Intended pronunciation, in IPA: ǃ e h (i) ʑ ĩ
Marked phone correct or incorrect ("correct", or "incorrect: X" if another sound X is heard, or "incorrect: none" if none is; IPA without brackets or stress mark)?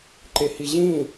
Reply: correct